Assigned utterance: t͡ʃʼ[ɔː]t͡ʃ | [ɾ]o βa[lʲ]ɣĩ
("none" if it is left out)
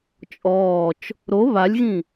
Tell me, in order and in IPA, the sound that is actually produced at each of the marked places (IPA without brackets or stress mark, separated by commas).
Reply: ɔː, ɾ, lʲ